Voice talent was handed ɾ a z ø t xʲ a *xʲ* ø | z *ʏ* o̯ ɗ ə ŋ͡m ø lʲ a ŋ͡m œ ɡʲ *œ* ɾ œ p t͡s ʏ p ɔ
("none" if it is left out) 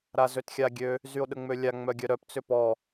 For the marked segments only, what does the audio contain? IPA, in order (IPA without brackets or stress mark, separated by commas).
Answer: ɡʲ, y, œ